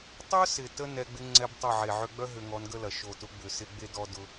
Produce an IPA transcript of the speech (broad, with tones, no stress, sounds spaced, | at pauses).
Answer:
tˤ œ˦ s ɪ˨ t ə˧ n ɛ˧ ɡ͡b ɪ˦ ŋ͡ǀ ɛ˦ b tˤ ə˦˨ ʕ e˨ ʕ ʏ˧ ɡ͡b œ˦ ɦ ʏ˧ ŋ ɔ˨˦ n ɡ ə˦ l ɐ˨ ʃ o˨ t ʊ˨˦ ɡ͡b ʏ˨ s ɪ˧ ɡ͡b e˦ d ɔ˦ d ʊ˦